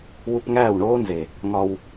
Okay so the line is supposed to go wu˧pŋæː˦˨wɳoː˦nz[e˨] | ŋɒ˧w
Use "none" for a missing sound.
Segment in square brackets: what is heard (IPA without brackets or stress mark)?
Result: e˨